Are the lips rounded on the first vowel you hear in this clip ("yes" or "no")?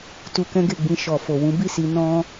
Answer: yes